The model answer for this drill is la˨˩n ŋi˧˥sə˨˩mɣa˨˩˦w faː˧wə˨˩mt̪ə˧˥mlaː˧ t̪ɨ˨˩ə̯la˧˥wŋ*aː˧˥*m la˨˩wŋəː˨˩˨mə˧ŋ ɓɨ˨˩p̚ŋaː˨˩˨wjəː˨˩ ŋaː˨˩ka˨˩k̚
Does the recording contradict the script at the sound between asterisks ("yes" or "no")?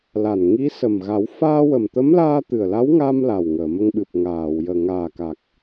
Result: yes